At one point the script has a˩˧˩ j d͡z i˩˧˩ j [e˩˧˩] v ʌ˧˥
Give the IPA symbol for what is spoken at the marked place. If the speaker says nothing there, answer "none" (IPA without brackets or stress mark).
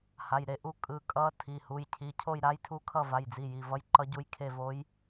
i˩˧˩